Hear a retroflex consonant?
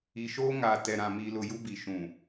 no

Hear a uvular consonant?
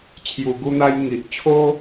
no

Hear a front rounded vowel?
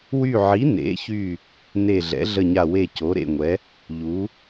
yes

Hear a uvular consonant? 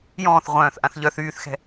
yes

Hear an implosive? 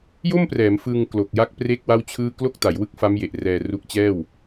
no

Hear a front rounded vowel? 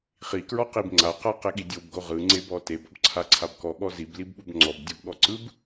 no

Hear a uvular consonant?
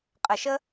yes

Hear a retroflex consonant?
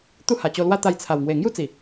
no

